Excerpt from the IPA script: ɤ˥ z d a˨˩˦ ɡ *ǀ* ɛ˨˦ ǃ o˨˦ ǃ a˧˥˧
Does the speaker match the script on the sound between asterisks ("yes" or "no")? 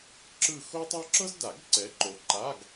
yes